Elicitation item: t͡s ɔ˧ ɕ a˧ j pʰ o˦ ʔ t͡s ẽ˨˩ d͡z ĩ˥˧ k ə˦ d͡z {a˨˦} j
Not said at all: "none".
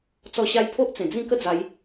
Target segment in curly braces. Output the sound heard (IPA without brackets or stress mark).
a˨˦